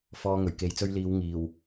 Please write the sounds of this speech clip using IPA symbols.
f ɔː˧ ŋ ɵ˨˩ ɥ k e˨ j t͡s ɵ˧ ɥ l iː˨˧ w ŋ iː˨˩ w

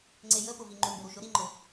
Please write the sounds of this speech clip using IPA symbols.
ŋ͡ǀ e j ə p ʊ v i ŋ͡ǃ u m b ə ɾ u ʃ ʊ ɾ i ŋ͡ǃ ʊ

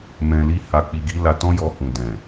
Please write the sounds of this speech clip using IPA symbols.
m ɛ̃˨ l i˧ h a˨ k͡p i˨ ɡ i˨˦ l a˧ t ɔ̃˦ j ɔ˧ h ũ˨ d ɛ̃˨

